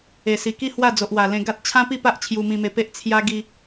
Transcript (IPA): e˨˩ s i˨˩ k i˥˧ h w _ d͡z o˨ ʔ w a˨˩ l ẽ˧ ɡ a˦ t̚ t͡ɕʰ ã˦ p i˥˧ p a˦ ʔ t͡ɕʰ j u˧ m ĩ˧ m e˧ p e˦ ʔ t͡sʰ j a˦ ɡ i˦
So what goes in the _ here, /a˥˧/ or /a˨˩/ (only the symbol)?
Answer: a˥˧